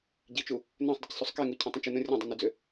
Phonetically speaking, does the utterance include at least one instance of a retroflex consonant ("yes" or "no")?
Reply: no